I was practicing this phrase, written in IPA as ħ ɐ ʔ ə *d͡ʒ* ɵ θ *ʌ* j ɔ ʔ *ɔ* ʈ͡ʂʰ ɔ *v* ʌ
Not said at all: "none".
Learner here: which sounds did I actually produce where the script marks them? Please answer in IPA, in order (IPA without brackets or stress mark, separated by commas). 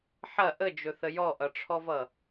d͡ʒ, ə, ʌ, v